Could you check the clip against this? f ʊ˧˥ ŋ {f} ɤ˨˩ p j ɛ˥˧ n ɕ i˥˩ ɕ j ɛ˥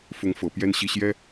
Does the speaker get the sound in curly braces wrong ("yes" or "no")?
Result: no